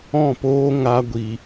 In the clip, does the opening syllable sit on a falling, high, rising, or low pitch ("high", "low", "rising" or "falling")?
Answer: falling